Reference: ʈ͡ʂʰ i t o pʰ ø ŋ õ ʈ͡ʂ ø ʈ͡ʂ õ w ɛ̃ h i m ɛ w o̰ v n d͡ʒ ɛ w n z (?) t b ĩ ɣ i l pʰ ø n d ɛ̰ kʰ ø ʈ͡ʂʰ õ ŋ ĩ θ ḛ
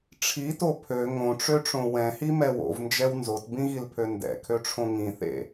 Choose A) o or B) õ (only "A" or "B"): A